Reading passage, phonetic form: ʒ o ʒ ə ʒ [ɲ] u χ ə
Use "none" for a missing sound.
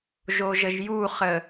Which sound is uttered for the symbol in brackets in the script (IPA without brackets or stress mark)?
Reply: j